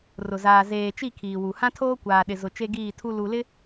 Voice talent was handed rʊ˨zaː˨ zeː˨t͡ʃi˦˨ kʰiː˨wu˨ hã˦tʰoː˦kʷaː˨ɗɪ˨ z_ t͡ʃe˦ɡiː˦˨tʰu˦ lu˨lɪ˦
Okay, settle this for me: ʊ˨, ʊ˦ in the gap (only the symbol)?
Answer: ʊ˨